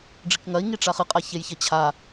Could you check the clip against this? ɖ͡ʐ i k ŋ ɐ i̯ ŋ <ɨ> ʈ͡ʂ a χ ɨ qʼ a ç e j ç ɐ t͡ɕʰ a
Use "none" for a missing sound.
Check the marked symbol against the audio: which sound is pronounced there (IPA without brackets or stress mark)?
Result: i